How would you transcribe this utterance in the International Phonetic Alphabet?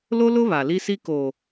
l o˦ l ʊ˦ β a˨ l i˦ s i˦ k o˨

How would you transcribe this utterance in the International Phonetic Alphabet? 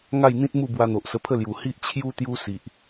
ŋ a˥˧ j n̪ ĩ˦ t̚ m u˥˧ b w a˧ n̪ o˨ ʔ s ə˧ pʰ ə˥˧ l j u˨˩ h i˦ ʔ t͡ɕʰ j u˦ t̪ j u˦ s i˨ ʔ

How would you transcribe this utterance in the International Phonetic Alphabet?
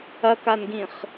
ɐ k a n ɡ ĩ χ

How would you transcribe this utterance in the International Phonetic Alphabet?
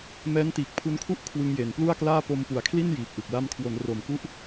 m ɛː˦˥ n t iː˨˩ k̚ pʰ u˦˥ n kʰ u˥˩ ʔ kʰ w ɯ˧ ŋ j e˩˦ n p l u˥˩ a̯ k l aː˥˩ p o˧ m p u˩˦ a̯ kʰ l i˥˩ n j iː˨˩ p̚ ʔ ɯ˨˩ k̚ l a˧ m kʰ w o˩˦ n r o˩˦ m k u˦˥ ʔ

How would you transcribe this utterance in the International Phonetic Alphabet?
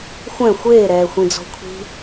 xʷ ɛ̃ xʷ eː ɾ ɛː xʷ ĩ d͡z ɔ̤ kʷʰ i̤

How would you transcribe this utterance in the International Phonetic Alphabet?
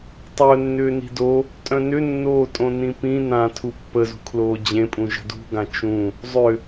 tˤ œ nː ʏː n i̤ d o | tʼ œ̃ n ʏ nː oː tʼ õ n ĩ p ĩ n ã tʰ u pː ə z ṳ kʰ l oː d͡ʑ ẽ pʼ ũ ʒ ə̤ d ṳ ɡ ã t͡ʃ ũ | zˤ ʏ

